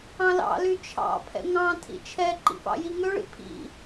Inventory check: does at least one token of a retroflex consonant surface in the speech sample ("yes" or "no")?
yes